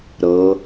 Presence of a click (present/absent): absent